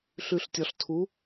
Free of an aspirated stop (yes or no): no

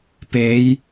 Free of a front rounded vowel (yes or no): yes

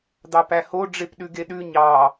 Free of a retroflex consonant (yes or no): no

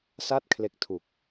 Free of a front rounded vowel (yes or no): yes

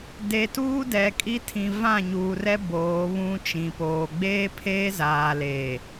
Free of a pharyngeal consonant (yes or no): yes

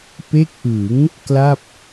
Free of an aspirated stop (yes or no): yes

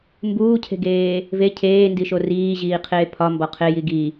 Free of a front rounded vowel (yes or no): yes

